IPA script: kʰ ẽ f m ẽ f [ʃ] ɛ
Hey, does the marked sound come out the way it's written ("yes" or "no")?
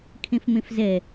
no